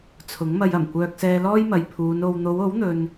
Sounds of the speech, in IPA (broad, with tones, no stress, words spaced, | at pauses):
t͡sʰʊ˨˥ŋmɐ˧jɐ˨˩m kʷœː˧k̚sɛː˧lɔː˥jmɐ˨j pʰuː˨˧no˧w n̪o˨˧wo˨˥wn̪ɵ˨n